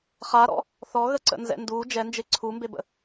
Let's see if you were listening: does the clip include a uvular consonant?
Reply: yes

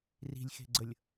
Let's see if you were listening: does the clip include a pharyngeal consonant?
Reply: no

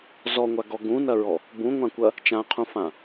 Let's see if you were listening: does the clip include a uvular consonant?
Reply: yes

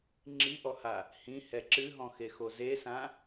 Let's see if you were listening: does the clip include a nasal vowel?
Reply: yes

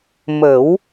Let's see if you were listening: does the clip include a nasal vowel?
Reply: no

